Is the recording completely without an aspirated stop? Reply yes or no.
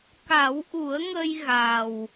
yes